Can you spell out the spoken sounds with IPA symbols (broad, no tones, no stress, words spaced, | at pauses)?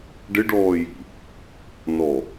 ɖɪɖɔːji̤ | nɔ